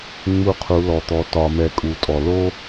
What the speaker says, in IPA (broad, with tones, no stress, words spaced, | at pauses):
ŋ͡mu˦qʰu˨˦lɔ˨t̪ɔ˧ tɒ˧mɛ˧ kʼu˨˦tʼɔ˨ lo˦